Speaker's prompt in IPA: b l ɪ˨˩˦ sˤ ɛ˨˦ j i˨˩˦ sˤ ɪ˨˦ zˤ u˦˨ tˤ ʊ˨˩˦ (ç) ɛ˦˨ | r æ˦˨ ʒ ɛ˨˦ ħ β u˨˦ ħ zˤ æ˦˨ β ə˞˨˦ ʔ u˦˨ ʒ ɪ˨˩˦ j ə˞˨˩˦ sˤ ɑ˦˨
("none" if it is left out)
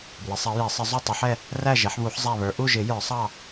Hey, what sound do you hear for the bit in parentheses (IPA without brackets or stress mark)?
ħ